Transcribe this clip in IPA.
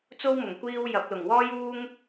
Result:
t͡s o˥ w m ʊ˨˩ ŋ kʷ iː˥ w j ɐ˨˥ p̚ l ʊ˨˩ ŋ w ɔː˥ j uː˥ ŋ

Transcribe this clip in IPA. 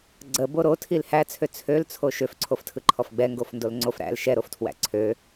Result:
ɡ͡ǀ ə b o ɾ o tʰ i l h æ t͡sʰ ø t͡sʰ ø l t͡sʰ o ʃ ø f ǀʰ o f tʰ ɯ ǃʰ ɔ f ɡ͡b ɛ ŋ ɡ o f n d o l ŋ͡ǀ o f ɾ æ̰ l ʃ ɛ ɾ o f tʰ w æ̰ ǀʰ ø

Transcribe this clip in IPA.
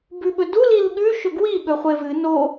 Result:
b ʉ ɓ ɵ d u l i l ɠ ʉ ʃ ɵ ɡ w i ɠ ɵ χʷ e v ɨ n o

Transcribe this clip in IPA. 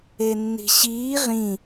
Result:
e nː i̤ ɕ iː ʁ ĩ

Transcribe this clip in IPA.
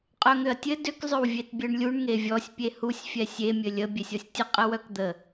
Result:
qʼ œ ŋ ʏ ɐ̯ tʲ ɘ d ʏ k zˤ ʏ w vʲ e t bʲ œ ɳ lʲ u ɳ ŋ e vʲ ɔ sʲ pʲ e h u sʲ fʲ ɛ sʲ e mʲ ɘ lʲ ə bʲ e sʲ ɔ sʲ tʲ ə qʼ ə w œ k d̪ ə

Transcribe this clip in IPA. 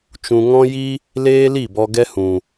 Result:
t͡ʃ ũ˧ ŋ ɔ̃˦ j i˦ | l eː˦ l i˦˨ b ɔ˧ ɡ ɛ˦ h ũ˨

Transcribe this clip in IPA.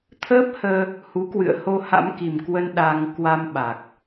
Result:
t̪ʰ əː˦˥ p̚ h əː˧ | h u˨˦ k w ɨ̰˧˨ ə̯ h o˧ h a̰˧˥ m k i˨˩ m k w ə˧ n ɗ a˧ ŋ k w a˧ m ɓ a˨˩ k̚

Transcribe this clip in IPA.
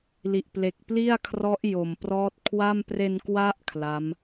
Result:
l i˨˩ ʔ p l e˨˩ k̚ p l i˥˩ a̯ kʰ r ɔ˦˥ ʔ j o˨˩ m p r ɔː˥˩ t̚ kʰ w a˥˩ m p r e˧ n k w a˥˩ ʔ kʰ l a˦˥ m

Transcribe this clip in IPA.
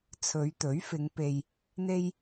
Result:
t͡sʰ ɵ˨˧ ɥ t̪ ɵ˨˥ ɥ f ɪ˨˧ ŋ p e˨ j | n̪ e˧ j

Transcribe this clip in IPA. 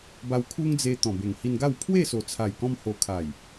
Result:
b a˧ w kʰ u˦ ŋ d͡z e˧ t̪ ɔ̃˨˩ b e˨˩ ŋ h i˧ n ɡ a˥˧ w pʰ w e˥˧ s o˨˩ t͡sʰ a˨˩ j k ɔ̃˧ m h o˨˩ kʰ a˨˩ j

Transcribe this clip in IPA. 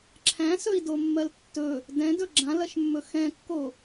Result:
ǁʰ æ̃ s ɵ i̯ d o mː ɜ l tː ɵ | d ɛ̃ d ɵ ɡ͡ǁ ã l ɐ ʃ mː ɵ x ɛ̃ kː o

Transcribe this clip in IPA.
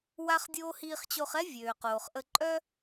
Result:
w a˧ χ dʲ oː˧ h iː˧ χ t͡ɕ o˧ χ ɛ˥ vʲ øː˩ q oː˩ χ ʔ ə˧ ǃʼ œ˥

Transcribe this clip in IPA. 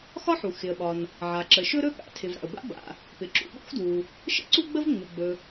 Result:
x ɒ˥ ħ u˩ x ɪ˩ ə̯ ɓ ɒ˩ n | ʕ a˩ ǁ ə˩ ʃ ɵ˥ ɾ ɵ˥ ɠ a̰˩ tʰ ɪ˩ v ɾ a̰˩ ʊ̯ b a̰˥ b a̰˩ | p ɪ˩ ǁ ṵ˩ ɓ ṵ˥ x d w u˩ | ʃ ə̰˥ ǀ u˥ ɡ͡b ə˥ v ŋ͡m ɪ˩ ɡ͡b ɵ˩

